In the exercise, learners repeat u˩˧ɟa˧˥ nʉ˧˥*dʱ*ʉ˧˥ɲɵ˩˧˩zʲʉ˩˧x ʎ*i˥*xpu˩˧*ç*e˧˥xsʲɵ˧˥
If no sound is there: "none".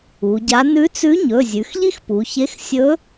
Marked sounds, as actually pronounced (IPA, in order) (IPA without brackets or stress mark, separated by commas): t͡s, i˥, ç